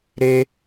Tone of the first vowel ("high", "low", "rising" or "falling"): high